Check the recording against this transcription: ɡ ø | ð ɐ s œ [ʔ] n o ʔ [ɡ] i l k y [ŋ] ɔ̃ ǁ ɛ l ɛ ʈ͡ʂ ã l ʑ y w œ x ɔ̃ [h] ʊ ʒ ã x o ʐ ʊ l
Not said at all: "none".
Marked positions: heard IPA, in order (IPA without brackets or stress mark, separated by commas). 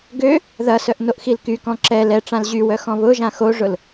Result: ʔ, x, k, β